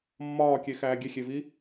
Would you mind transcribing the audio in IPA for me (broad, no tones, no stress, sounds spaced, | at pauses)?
mː ɒː kʲ e x æː ɡʲ e xʲ e v i